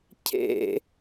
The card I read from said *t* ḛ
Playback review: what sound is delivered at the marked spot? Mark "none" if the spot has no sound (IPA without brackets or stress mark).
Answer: cʰ